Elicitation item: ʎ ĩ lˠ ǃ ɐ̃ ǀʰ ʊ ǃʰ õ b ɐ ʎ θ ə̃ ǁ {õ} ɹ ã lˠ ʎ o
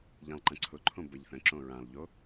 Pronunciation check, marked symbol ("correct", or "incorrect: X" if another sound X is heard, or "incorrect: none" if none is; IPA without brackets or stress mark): correct